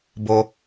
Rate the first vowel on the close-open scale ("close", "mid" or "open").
mid